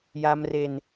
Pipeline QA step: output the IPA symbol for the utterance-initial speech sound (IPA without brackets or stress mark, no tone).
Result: j